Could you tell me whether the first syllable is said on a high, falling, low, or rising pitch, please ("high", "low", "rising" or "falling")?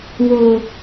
low